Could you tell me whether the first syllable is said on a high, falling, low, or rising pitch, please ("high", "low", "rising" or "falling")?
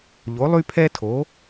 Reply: rising